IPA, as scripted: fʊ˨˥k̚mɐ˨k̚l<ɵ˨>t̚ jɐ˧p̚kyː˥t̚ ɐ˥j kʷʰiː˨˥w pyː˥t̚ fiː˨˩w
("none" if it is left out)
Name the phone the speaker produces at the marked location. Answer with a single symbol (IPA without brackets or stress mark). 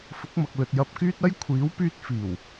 ɵ˨